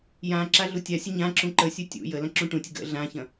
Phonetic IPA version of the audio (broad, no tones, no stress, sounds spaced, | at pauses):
j ã ǁ a ɮ u tʲ a sʲ ə ɲ ã ǁ ũ ǃ ə sʲ u tʲ ṵ j ə l ɐ̃ ǁ ũ ʈ ũ tʲ ə ɡ ə̰ ɮ ã ç ɐ̃